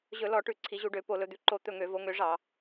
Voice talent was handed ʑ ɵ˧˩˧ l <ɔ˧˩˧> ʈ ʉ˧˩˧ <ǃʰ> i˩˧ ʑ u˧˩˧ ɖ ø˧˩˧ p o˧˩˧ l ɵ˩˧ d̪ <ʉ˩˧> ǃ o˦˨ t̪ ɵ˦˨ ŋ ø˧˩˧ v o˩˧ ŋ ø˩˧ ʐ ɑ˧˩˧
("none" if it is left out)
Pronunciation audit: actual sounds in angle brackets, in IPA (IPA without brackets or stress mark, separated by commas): ɔ˧˩˧, ǀʰ, ʉ˩˧